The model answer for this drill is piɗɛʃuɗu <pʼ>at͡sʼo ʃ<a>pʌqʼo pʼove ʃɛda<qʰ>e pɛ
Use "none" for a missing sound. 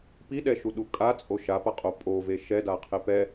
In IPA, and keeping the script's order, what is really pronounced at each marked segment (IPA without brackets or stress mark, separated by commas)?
kʼ, a, qʰ